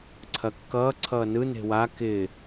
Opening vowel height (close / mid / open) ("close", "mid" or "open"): open